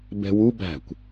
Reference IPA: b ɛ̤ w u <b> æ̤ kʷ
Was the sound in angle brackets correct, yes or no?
yes